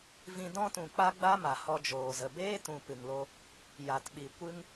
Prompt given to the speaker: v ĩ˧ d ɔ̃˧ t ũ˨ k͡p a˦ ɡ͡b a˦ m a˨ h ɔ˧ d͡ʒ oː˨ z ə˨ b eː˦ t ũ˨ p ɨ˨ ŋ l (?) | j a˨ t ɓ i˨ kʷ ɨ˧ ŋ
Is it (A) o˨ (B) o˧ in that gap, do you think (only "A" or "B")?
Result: B